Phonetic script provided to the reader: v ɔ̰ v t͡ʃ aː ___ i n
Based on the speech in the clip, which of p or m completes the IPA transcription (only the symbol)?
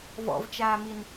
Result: m